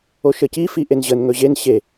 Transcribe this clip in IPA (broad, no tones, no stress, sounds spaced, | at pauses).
o ʃ ə c i f i ʔ e n ʑ ə n ŋ ɵ ʑ e n ɕ e